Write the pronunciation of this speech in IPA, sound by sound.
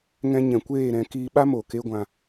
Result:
ŋ ɛ̃˧ ɲ ɛ̃˨ kʷ eː˦˨ ɾ ɛ̃˧ k iː˧ ɓ a˦ m o˨ k e˦ ɡʷ ã˧

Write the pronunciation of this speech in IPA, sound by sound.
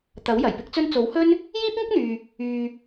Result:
t̪ ɐ˨˥ w j ɐ˨˩ j p ɪ˥ k̚ t͡s ɵ˥ n t͡s o˨˥ w h ɵ˥ n | j iː˥ p̚ ŋ ɪ˥ k̚ n̪ yː˨ | yː˨

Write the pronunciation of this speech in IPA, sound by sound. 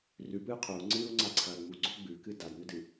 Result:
r ʉ p ɨː qʰ o u̯ ŋ͡ǀ ɨː u̯ ŋ͡ǀ a ǀʰ ɐː ŋ͡m u ɡ͡ǀ o ɡ͡b ʉ k ɨ d a d n ɵ d ɨ

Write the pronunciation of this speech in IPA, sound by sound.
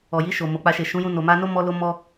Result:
ɔ˨ j i˧ ʃ o˨ m o˨ k͡p a˧ ʃ e˨ ʃ ũ˨˦ j ũ˧ n o˨ m a˧ n o˦ m ɔ˦ l o˦ m ɔ˦

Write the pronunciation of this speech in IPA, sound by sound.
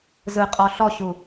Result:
z ɯ qʼ ɔ ɬ ɔ ɕ u

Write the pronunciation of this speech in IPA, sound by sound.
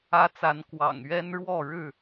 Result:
ä˦ t͡s a˨˦ n k w ɑ̰˨˩ ŋ ɥ ɛ˦ n ɻ w ɔ˥˨ ɻ ɻ̩˥˨

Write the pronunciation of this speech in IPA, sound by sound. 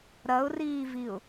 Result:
ɾ ɐ ʊ̯ r iː v i ʊ̯

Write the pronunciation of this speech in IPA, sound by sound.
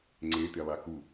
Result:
ŋ͡ǀ e t̪ e lˠ a k u

